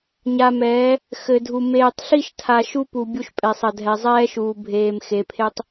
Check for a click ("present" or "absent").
absent